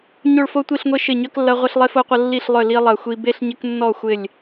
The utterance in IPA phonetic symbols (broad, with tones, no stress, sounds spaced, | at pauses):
ɲ o˥˨ ɭ f o˥ tʷ i˥˨ ɬ ŋʷ e˥ ʃ ɪ˥˨ ɲ œ˥ k lː ɐ˥ ʁʷ ɐ˥ ɬ lˠ e˥ f o˥ qʷ ɐ˥ lː i˥˨ ɬ lˠ œ˥˨ l i˥ lˠ ɐ˥˨ xʷ i˥ b e˥ ɬ ɲ ɪ˥ k nː ɔ˥˨ xʷ ɪ˥˨ lʲ